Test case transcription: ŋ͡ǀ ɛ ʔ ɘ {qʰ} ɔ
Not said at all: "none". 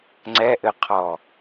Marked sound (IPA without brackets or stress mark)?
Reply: qʰ